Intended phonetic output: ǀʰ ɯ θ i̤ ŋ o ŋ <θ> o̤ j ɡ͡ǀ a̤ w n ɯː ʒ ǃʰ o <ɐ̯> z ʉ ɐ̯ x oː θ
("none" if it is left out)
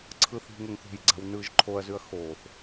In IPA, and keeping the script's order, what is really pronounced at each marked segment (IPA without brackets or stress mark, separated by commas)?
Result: θ, ɐ̯